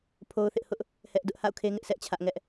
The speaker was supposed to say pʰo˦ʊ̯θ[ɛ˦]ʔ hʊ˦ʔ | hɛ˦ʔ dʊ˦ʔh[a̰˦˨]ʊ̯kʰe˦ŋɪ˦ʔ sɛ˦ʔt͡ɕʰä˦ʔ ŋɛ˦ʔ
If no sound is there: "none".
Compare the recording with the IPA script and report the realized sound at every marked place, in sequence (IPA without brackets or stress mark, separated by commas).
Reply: ɪ˦, a̰˦˨